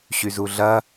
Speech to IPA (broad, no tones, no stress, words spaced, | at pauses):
ɕyzuɮɐ